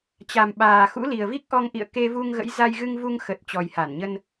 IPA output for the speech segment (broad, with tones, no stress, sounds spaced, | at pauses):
t͡ɕ a˨˩ m ɓ aː˨˩ x ṵ˧˥ l i˨˩ ə̯ v i˦˥ k̚ ʔ ɔ˧ ŋ ʔ ḭ˧˨ ə̯ k e˧ v u˧ ŋ ɣ ə̰˧˥ j z a˧ j ɣ ɨ˧ ŋ v u˧ ŋ x ə˨˩ t̚ t͡ɕ ɔ˨˩ j h a˧˩ n ɲ ə˧ n